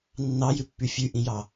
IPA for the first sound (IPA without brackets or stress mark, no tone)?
nː